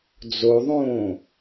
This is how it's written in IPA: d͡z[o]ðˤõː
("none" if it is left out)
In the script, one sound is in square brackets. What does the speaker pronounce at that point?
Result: o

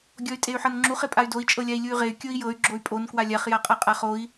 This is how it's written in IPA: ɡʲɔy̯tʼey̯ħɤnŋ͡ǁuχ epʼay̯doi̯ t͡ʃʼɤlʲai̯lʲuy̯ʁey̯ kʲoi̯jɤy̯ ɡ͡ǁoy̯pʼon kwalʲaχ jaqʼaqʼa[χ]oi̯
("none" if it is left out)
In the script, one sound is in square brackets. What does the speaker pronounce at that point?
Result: χ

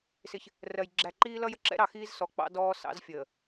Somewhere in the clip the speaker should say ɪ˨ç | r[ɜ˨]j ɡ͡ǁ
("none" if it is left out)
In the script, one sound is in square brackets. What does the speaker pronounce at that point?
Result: ɜ˨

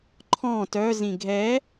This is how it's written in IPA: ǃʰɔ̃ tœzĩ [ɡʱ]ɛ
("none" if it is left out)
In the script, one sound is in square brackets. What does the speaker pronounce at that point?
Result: ɡʱ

